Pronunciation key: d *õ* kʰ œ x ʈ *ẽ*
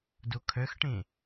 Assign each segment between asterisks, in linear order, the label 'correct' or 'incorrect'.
incorrect, correct

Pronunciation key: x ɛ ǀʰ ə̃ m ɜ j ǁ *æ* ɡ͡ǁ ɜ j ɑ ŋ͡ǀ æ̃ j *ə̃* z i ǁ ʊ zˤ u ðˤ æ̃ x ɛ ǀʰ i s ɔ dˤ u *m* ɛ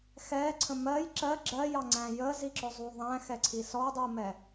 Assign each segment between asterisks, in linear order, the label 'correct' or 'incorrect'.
incorrect, incorrect, correct

